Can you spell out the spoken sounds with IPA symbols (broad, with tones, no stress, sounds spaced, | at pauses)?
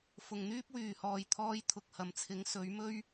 f ʊ˨ ŋ n̪ yː˥ p̚ w yː˨ h ɔː˨ j t̪ʰ ɔː˧ j t̪ʰ ʊ˨ k̚ h ɐ˨˩ m t͡sʰ ɪ˨˥ ŋ s ɵ˨˥ ɥ m ɵ˥ ɥ